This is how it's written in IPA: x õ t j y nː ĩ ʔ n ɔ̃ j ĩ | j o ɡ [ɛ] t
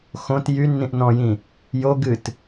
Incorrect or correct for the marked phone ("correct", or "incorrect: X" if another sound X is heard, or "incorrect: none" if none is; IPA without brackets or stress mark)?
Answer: incorrect: ɨ